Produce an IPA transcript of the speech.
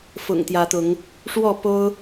f ʊ̰˨˩ ŋ t̪ j ä˨˦ t̪ ʊ˨˦ ŋ | ʂ w ɔ˥˨ p o˦ ʊ̯

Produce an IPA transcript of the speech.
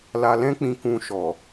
l a˧ l ɛ̃˦ k͡p ĩ˧ k ũ˧ ʃ ɔ˨

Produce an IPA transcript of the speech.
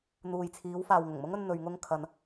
n̪ uː˨ j t͡sʰ iː˨˧ w f aː˨ w ŋ ʊ˨˩ ŋ m ʊ˥ ŋ ɵ˧ n n̪ ɵ˧ ɥ ŋ ʊ˥ ŋ kʰ ɐ˧ n

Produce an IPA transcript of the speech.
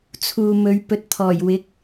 t͡sʰ uː˨ m ɵ˨˧ ɥ p ɵ˨ t̚ t̪ʰ ɔː˨˩ j w ɪ˨˥ k̚

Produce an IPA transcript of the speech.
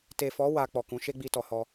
t e˨ f ɔ˨˦ w a˧ k͡p ɔ˨ k ũ˨˦ ʃ e˦ ɡ͡b i˧ t ɔ˨ h ɔ˧

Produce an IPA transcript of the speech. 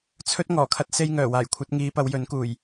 t͡sʰ ɵ˥ t̚ ŋ ɔː˨˩ kʰ ɐ˧ t̚ s e˧ j ŋ œː˨˩ w aː˨˩ j kʷʰ ɐ˨˥ t̚ ŋ iː˨˧ p ɐ˨˧ w j ɵ˨˥ n k uː˨˩ j

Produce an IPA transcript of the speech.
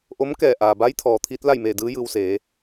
ʔ o˧˥ m k ɛː˧˩ ʔ aː˩ b a˧˥ j t̪ʰ ɔː˩ t̪ʰ iː˧˥ t̚ l a˥˨ j m eː˧˩ d ɯː˧˥ j ɯː˧ w s eː˩˧

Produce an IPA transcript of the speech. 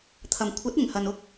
t̪ʰ ɐ˨ m kʷʰ ɐ˨˥ t̚ ɪ˨˩ ŋ h ɐ˨ n ʊ˥ k̚

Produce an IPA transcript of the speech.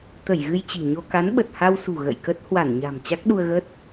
t̪ ə˧˩ j ɣ ɨ˧ j t͡ɕ i̤˨˩ ɲ o˧ k a˨˦ n ɓ ə˨˩ t̚ h a˧ w s ṳ˨˩ ɣ ə̰˧˨ j k ə˦˥ t̚ h w a˧˩ n ɲ a̤˨˩ m t͡ɕ a˦˥ k̚ ɗ u˧ ə̯ ɣ ə˦˥ t̚

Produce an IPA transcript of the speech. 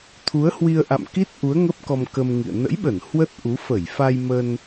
t̪ʰ u˨˦ ə̯ h w i˧ ə̯ ʔ a̰˧˨ m k i˦˥ t̚ ʔ u˨˦ ə̯ ŋ ə˦˥ p̚ k ɔ˧ m k ə˧ m ŋ ḭ˧˨ ə̯ n ə̰˧˥ j ɓ ə˧˩ n h w ə˦˥ t̚ ʔ u˨˦ f ə˧˩ j f a˧ j m ə˧ n

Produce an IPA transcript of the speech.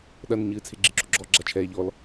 ɗ ɐ n ɘ ɲ ɨː t͡sʰ e ɡ͡ǁ ɨ ǁ o ɡ͡ǁ ɔ ɡ͡ǁ a t͡ʃʰ ɛː ʎ ɔ l

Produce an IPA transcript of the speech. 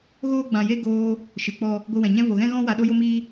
ɣ oː˦ ɡ͡b ã˧ j e˦ ɡ oː˧ | ʃ ɨ˨ k͡p ɔ˦ | ɡʷ ɨ˧ w ɛ̃˨ ɲ ɛ̃˦ v o˨ ɣ ɛ̃˦ ɣ ɔ̃˦ w a˧ ɗ o˦ j o˦ m iː˦

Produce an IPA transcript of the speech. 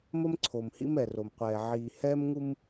m ə˦ m ǀʰ o˨ m h ḭ˦ m ɛ˨ r o˨ m qʷ ɛː˨ ʕ iː˨ h ɛː˦ m ŋ u˦ m

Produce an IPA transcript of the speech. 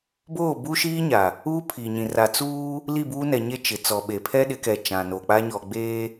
b oː˦˨ b u˦ ʃ iː˦ ɲ a˨ | uː˦ pʰ i˨ ɲ ĩ˨ r a˨ t͡s uː˦ | l i˦˨ b uː˦ n ɛ˨ ɲ e˦ t͡ʃ ɪ˨ t͡s ɔ˨ ɓ e˨ pʰ ɛ˦ ɗ ɪ˨˦ k ɛ˨ t͡ʃ ã˨ n o˨ k͡p a˦ ɲ ɔ˨ ɡ͡b eː˦

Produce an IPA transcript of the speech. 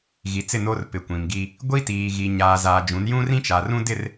ɣ i˨ t͡s ɪ˦˨ n o˦ r p ɪ˨ kʷ ĩ˨ m ɡ i˦ | ɡʷ i˦ t iː˨ ɣ i˨ ɲ aː˨ z aː˨ d͡ʒ ũ˨˦ n j ũ˦ r ĩ˦ t͡ʃ a˨ r ũ˦ d ɪ˦˨ r

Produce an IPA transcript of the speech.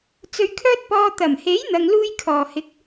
t͡s ɵ˧ ɥ kʰ œː˥ t̚ p ɔː˧ t̪ ɐ˨˩ m h e˨˥ j n̪ ɐ˧ ŋ l uː˥ j kʰ ɔː˨ h ɪ˨˥ k̚

